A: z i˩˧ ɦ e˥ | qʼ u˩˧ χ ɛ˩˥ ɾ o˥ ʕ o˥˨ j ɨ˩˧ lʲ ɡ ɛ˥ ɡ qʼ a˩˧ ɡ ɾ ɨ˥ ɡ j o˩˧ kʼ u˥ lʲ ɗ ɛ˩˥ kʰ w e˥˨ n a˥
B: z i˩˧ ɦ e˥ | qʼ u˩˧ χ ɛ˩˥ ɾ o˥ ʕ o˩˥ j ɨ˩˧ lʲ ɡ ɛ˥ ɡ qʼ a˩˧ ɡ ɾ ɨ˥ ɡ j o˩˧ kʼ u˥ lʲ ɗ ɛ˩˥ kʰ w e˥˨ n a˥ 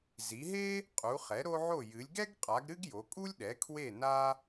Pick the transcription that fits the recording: A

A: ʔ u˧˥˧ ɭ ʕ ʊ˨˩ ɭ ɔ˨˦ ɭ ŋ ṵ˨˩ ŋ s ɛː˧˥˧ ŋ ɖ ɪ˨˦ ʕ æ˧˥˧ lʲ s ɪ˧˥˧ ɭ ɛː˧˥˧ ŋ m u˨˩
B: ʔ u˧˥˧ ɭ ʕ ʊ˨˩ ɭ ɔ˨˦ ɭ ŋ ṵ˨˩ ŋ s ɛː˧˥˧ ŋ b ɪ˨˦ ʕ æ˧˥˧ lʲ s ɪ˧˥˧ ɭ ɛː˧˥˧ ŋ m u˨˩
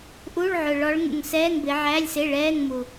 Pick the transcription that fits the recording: B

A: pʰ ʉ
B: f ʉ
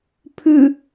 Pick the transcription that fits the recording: A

